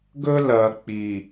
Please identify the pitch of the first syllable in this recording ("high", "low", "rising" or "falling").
high